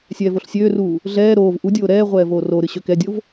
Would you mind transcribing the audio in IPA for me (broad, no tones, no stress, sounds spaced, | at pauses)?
sʲ ɛː v o ɬ sʲ øː r uː | ɮ ɛː ɾ oː v ʔ u dʲ oː ɾ ɛː ʁʷ ɛː v oː r o ɾ ɨ ɕ ø k ɛ dʲ o v